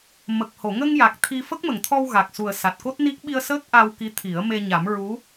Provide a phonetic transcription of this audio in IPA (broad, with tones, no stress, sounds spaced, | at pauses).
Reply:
m ə˨˩ k̚ h o˨˩˨ ŋ ə˧ ŋ j a˨˩ k̚ t̪ʰ i˧ f ə˦˥ k̚ m ə˨˩˨ ŋ t̪ʰ ɔ˧ w ɣ a˨˩ k̚ s u˨˩ ə̯ s a˨˩ t̚ k o˦˥ t̚ n i˦˥ k̚ ɓ i˧ ə̯ s əː˦˥ k̚ ʔ a˧ w k i˧˥ t̪ʰ i˨˩˦ ə̯ m e˧ ɲ a˨˩˦ m ɹ u˧˥